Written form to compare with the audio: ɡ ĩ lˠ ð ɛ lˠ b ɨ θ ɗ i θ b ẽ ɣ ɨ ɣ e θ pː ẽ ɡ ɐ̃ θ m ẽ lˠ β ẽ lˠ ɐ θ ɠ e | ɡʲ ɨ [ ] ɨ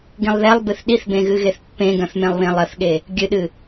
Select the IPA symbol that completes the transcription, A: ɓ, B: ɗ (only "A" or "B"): B